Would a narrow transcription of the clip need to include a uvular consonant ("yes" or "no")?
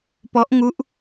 no